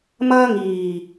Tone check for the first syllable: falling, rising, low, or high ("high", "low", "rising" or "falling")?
high